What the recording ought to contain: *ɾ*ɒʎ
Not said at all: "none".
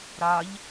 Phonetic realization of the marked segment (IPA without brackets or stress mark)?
ɾ